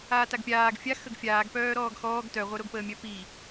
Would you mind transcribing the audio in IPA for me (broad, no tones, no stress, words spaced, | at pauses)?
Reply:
aːtaɡpʲaːɡ fʲa xəɡfʲaːɡ pœːɾɔːɡxɔːɡ tœ ʁʷœɾoɡpəːmʲœ pi